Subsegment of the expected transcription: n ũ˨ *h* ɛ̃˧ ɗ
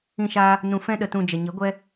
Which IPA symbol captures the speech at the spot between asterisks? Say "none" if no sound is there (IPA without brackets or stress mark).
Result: f